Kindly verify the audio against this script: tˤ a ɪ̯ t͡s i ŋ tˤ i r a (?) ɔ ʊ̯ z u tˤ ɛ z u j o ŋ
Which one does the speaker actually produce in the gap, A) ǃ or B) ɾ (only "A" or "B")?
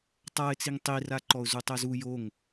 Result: A